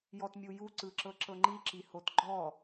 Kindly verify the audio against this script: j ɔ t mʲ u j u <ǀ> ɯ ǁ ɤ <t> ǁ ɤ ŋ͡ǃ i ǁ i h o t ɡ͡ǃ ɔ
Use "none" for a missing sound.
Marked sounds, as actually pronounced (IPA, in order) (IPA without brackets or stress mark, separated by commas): ǀ, none